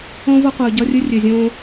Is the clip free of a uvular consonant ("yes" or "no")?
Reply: no